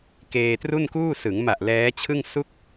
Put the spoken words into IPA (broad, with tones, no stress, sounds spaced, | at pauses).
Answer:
k eː˧ t r u˥˩ n k uː˥˩ s ɯ˩˦ ŋ m a˨˩ ʔ l ɛː˦˥ t͡ɕʰ ɯ˥˩ ŋ s u˥˩ k̚